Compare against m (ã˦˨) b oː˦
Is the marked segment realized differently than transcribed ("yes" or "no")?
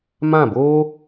no